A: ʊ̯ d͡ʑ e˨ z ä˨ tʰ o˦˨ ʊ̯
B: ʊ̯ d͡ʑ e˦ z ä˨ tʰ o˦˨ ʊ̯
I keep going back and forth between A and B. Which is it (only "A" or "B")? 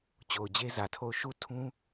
B